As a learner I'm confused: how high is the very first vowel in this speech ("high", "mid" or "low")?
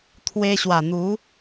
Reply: mid